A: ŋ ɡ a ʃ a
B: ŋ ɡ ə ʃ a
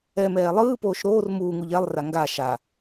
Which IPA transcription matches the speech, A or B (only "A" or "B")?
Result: A